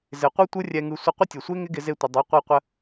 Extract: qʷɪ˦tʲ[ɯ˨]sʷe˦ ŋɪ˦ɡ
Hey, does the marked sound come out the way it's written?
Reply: yes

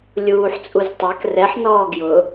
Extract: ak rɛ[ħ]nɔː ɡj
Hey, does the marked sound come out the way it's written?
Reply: yes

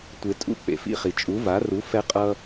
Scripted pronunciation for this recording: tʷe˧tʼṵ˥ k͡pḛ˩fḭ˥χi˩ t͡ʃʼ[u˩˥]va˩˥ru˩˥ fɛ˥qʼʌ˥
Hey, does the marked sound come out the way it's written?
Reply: yes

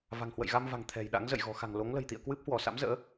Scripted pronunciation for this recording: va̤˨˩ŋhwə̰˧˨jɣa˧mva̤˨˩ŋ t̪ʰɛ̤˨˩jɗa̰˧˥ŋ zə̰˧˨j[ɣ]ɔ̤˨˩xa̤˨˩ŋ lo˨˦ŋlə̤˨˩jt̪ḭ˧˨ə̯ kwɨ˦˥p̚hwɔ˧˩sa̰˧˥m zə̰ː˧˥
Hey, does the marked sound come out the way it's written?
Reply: yes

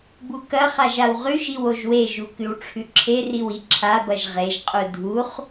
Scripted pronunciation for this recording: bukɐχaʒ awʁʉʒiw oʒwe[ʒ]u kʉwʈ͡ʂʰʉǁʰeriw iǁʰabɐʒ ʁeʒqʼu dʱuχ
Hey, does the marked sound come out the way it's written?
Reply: yes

